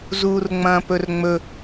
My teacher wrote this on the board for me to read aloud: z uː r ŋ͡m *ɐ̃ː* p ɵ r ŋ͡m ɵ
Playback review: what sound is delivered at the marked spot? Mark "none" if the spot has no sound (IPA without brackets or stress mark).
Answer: ɐ̃ː